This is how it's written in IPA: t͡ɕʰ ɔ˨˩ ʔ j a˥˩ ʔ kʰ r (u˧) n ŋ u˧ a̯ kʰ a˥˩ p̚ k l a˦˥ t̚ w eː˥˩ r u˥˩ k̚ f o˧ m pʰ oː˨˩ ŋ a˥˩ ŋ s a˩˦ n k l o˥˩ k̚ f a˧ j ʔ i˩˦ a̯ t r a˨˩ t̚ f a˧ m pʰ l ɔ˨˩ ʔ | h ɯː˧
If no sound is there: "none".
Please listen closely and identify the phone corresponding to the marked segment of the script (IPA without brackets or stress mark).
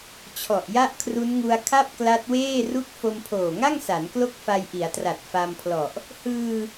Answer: u˦˥